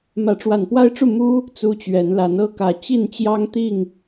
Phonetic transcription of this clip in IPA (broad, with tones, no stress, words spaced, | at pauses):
mä˨˦ʈ͡ʂwa˨˩npwa˦ɪ̯ʈ͡ʂu˥˨ mu˦ | t͡su˦t͡ɕɥɛ˨˦nla˨˦n ɤ˥˨kä˨˩ t͡ɕi˥˨nt͡ɕjɑ˦ŋt̪i˥˨ŋ